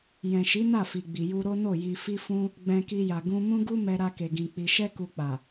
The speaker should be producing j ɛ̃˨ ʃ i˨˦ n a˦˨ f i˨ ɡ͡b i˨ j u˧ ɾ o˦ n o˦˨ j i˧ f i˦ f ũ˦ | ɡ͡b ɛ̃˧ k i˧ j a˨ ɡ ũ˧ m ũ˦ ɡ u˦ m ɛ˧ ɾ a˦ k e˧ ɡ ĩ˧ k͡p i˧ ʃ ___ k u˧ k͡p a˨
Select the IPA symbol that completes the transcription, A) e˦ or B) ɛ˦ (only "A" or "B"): B